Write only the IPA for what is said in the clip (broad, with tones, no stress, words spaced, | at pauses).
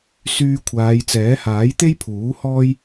syː˧kʷʰaː˨˧jt͡sɛː˨˥ haː˨˥jt̪e˥jpʰuː˨˥ hɔː˥j